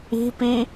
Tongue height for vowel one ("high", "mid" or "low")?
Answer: high